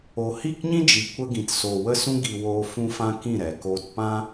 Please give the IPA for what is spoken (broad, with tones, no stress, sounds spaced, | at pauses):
o˨ h i˦˨ k ɲ ĩ˦ d͡ʒ i˨ kʷ ə˧ ɡ ĩ˨ t s oː˨ w ə˦ s ũ˦ ɡ i˧ w oː˧ f ũ˦ f ã˦ k ĩ˦˨ ɾ ɛ˨ k oː˧ t p ã˦